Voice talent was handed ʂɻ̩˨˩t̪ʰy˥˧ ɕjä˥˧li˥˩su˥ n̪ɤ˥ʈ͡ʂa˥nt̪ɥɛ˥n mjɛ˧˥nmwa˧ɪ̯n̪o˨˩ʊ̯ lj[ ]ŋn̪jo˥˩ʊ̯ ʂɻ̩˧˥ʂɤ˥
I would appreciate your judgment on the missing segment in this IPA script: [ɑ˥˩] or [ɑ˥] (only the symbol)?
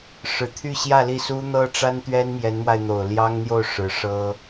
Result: ɑ˥